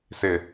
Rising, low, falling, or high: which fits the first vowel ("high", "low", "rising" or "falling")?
low